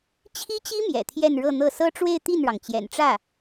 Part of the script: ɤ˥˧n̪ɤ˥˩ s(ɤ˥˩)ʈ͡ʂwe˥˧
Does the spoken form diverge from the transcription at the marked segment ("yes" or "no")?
yes